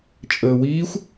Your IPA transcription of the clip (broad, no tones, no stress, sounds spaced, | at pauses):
t͡ʃʼ əː w iː xʷ